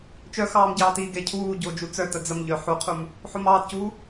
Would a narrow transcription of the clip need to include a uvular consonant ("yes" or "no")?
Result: yes